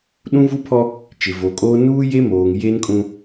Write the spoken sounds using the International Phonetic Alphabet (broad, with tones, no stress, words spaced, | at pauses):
ɗũ˦vu˦pʰɔ˦ | t͡ʃɪ˨vo˨kʼoː˦ nuː˦je˦moː˨ŋ je˦nkʼũ˦